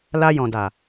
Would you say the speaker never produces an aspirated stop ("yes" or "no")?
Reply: yes